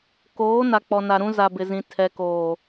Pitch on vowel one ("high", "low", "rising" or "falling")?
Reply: rising